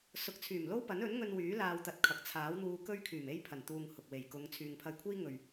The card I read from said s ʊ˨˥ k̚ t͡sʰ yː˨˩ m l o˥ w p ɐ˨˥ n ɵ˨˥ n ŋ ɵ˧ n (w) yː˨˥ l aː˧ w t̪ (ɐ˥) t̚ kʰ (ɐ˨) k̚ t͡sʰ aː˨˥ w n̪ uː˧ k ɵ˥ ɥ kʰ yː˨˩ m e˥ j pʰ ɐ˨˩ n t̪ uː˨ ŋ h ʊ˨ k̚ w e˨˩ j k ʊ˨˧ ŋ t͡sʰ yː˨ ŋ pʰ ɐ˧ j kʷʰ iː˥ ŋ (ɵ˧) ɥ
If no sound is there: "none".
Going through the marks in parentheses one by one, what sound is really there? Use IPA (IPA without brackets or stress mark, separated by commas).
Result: w, ɐ˧, ɐ˨, ɵ˨